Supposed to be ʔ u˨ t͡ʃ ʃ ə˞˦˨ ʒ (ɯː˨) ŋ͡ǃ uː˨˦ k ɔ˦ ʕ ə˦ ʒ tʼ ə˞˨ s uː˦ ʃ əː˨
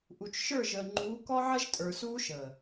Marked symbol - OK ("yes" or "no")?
no